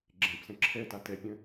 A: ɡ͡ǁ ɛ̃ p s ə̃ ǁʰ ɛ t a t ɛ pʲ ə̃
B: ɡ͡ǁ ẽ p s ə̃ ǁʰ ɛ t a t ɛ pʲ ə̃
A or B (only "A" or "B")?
B